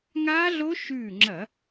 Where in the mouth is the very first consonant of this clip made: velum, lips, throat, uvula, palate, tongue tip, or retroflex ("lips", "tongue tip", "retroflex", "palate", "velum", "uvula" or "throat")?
velum